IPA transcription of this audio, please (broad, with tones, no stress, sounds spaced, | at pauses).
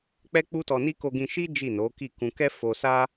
k͡p ɛ˦ k͡p u˦ t ɔ˧ n i˦ k o˧ ɡ ĩ˧ ʃ i˦ d͡ʒ i˦˨ n o˨˦ k i˦˨ k ũ˧ k ɛ˦ f o˧ s a˦